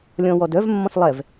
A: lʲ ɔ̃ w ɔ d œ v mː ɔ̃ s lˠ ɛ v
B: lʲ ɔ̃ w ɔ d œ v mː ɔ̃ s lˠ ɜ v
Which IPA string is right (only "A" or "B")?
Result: A